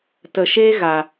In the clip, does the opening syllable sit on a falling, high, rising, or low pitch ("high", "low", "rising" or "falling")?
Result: low